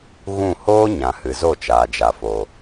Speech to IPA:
ɣ ũ˦˨ h oː˦ ɲ ã˨ h ɨ˨ z o˦˨ t͡ʃ aː˨ d͡ʒ a˨ f o˨

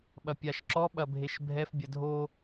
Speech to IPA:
ɓ ɐ pʲ a ʃ ǁ ɔ ɓ ɐ bʱ e ʃ bʱ ɛ f bʲ ɐ dʱ o

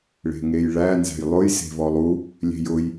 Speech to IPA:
ɭ e̤ ŋ e j ɭ æ n z æ̤ j lˠ ʊ j s e̤ v ɔ lˠ u | lʲ e̤ j ʊ j

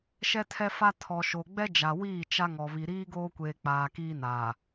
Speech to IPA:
ʃ ɛ˦ tʰ ɛ˦ f a˦ tʰ ɔ˨ ʃ o˨ ɡ͡b ɛ˦ d͡ʒ a˨ w iː˦˨ t͡ʃ a˦ ŋ ɔ˨ β i˨ ɾ iː˦ ɡ oː˦ kʷ eː˨ k͡p aː˨ k iː˦ n aː˨

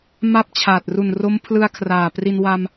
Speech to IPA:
m a˥˩ p̚ t͡ɕʰ aː˨˩ t̚ r u˨˩ n r o˦˥ m pʰ l ɯ˧ a̯ kʰ r aː˨˩ p r i˧ n w a˧ m

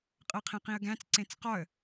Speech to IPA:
qʼ ɤ qʰ ẽ q ĩ ə̯ ɡ æ̃ t͡s ǀ ẽ t͡s q ɒ ə̯

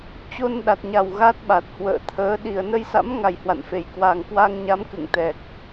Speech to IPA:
t͡ɕ o˧ n ɗ a˨˩ t̚ ɲ a˨˩ w ɣ a˦˥ t̚ ɓ a˨˩ t̚ h w ə̰ː˧˨ t̪ʰ əː˨˦ ɗ i˨˩ ə̯ n ə˧ j s a̰˧˥ m ŋ a˨˩ j h w a̰˧˨ n f e˧˩ j k w a˨˩ ŋ k w a˧ ŋ ɲ a˨˦ m k ɨ̰˧˨ ŋ t̪ ɛ˨˩ k̚

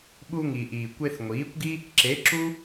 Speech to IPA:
ɓ u˧ ŋ i˨ ʔ iː˨ kʷ e˧ θ ŋʷ iː˨˦ kʷ ɡ i˦ | ǁ e˨˦ ǁ u˦

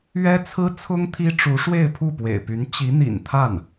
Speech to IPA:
ɥ ɛ˥ t͡sʰ ɹ̩˥ t͡sʰ ʊ˥ ŋ t̪ʰ i˥ ʈ͡ʂ u˧˥ ʂ w e˥˧ ɪ̯ pʰ u˥˩ p w ḛ˨˩ ɪ̯ p y˧˥ n t͡ɕ i˧˥ n̪ ḭ˨˩ n t̪ʰ a˥˩ n

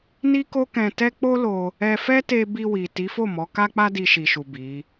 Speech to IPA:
n i˦ k o˦ k ɛ̃˧ t ɛ˦ k͡p o˦ l o˧ | ɛ˧ f ɛ˦ t e˧ b i˧ w i˨ t i˨˦ f o˦˨ m ɔ˨˦ k a˦ k͡p a˦ d i˧ ʃ i˨ ʃ u˨ b i˨˦

